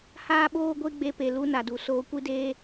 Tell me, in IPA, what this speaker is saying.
h aː˦ ɓ oː˦ ɡʷ e˦ ɡ͡b e˧ p e˨ l u˧ n a˨ d u˨ s oː˧ kʷ i˦ d eː˦

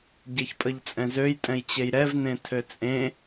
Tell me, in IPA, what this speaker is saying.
ɟ e ç pʼ ə ʎ t͡sʼ ɛ̃ z ø j tʼ ɛ̃ j t͡ɕ e j ɾ ɛ v n ẽ tʰ ø t͡sʼ ẽ

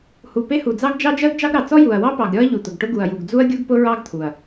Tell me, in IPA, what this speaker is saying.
h u˨˩ p e˥ h u˨˩ d͡z ɑ˥ ɡ d͡ʒ ɑ˥ d͡ʒ ɜ˥ ɡ d͡ʒ ɑ˥ ɡ ɾ ɑ˨˩ t͡s ɔ˥ j u˨˩ ɐ̯ w ɑ˥ p ɑ˨˩ ɡ ɾʲ ɔ˥ ɐ̯ ʎ u˨˩ t̪ ʊ˨˩ ɡ ʈ ʊ˥ ɡ u˨˩ ɐ̯ j u˨˩ ɡ d͡z u˥ ɐ̯ ɡʲ u˥ ɡ p ʊ˥ ɹ ɑ˥ ɡ t̪ʰ u˨˩ ɐ̯

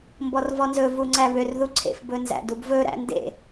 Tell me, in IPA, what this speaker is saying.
m b ɔ r v ɔ n z ɵ v u ŋ͡ǀ æ β ø r ð u ǀʰ ḛ f b ɵ n z æ̰ d u b v ɵ ɾ æ̰ n d ḛ

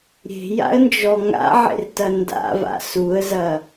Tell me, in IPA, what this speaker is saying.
ɾʲ e̤ j a̰ ə̯ n d͡ʒ ɔ ŋ a̰ ʕ ḛ r t ɐ n d a̰ v a̰ s u ə̯ z ɐ

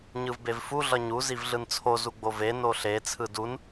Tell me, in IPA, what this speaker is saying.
ɲ ɯ v b e v f u ɮ ʌ ɲ u z i v ɮ ɯ n t͡sʰ o z u ɡ͡b o v e n o ɬ e t͡sʰ ɯ d u n

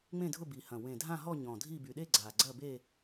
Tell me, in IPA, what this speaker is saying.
ŋ͡m ẽ˥˧ dʱ ʊ˥˧ b i˨˩ h ɐ̃˨˩ w ẽ˨˩ dʱ ã˥˧ ɦ ɔ˥˧ ɲ ɔ̃˨˩ dʱ i˥˧ b y˨˩ ɗ e˥˧ ɡ͡ǀ a˨˩ ɡ͡ǀ ɐ˥˧ b e˥˧

